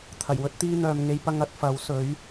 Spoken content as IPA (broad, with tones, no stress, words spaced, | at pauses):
t̪ʰɐ˨˩jwɵ˥t̚ t̪iː˧n̪œː˨mŋe˨˧jpɐ˧ŋ ɐ˨˥t̚ fɐ˨˥w sɵ˨˥ɥ